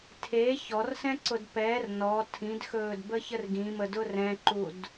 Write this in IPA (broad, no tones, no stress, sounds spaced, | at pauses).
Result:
tʰ e ç ɔ r s ɛ̃ ǀ ʊ d p ɛ r n ɔ tʰ ĩ d x ɵː d b ə ç ə r ɡ ĩ m ə d ʊ r ɛ̃ ǃ u d